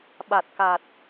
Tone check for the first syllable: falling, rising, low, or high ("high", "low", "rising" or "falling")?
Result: low